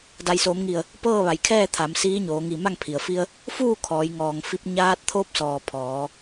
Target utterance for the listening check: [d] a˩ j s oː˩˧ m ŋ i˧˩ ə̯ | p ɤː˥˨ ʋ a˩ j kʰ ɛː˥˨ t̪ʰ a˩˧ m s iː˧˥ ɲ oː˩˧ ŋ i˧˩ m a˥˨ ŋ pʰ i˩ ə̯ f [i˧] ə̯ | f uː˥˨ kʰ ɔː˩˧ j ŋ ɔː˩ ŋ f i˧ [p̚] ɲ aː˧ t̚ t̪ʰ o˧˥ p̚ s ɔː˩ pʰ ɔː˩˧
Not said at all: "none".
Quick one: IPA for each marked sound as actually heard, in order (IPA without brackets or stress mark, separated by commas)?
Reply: d, i˧, p̚